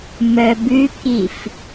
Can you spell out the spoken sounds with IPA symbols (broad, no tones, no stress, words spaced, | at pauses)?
mœbʉkif